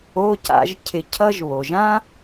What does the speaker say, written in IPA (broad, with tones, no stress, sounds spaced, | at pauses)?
o˧˥˧ c a̰˨˦ ʒ cʰ ɪ˨˦ cʰ ʌ˥ ʒ β o˩ ʒ ã˥